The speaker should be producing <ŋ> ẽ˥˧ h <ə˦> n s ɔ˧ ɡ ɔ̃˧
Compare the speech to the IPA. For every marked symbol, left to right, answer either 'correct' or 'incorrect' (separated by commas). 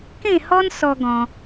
incorrect, incorrect